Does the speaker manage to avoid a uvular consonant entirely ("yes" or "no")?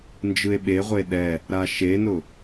no